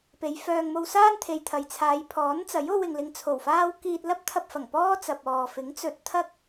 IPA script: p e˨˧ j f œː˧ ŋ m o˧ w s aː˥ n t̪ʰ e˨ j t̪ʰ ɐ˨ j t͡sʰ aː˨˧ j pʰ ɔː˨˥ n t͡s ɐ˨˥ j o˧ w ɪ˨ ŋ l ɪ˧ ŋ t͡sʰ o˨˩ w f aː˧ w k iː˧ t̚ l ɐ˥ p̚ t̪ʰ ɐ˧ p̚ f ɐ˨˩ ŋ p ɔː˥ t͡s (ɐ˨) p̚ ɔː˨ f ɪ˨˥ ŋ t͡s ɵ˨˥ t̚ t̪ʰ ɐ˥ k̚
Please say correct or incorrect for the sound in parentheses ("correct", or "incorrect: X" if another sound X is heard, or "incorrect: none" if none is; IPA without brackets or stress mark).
correct